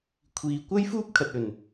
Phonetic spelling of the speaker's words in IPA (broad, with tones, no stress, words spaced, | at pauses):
kʷʰiː˨˧ kʷɐ˥jfuː˥p̚ kʰɐ˨t̚ɵ˨˩n